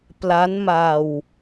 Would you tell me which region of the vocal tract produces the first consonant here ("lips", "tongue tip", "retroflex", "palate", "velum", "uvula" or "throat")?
lips